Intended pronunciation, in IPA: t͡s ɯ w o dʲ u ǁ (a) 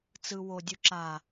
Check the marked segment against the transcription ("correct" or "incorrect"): correct